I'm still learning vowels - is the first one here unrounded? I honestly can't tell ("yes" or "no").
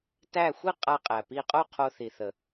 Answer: yes